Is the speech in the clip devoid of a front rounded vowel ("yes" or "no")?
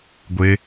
yes